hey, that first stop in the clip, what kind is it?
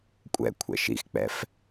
ejective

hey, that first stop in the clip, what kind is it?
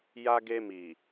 plain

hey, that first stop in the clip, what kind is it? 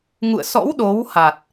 implosive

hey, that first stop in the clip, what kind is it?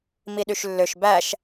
implosive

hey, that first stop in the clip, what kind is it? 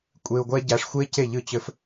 ejective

